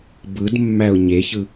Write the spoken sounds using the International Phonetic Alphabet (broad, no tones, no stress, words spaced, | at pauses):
bɯdmːæʊ̯ ɲeçɯ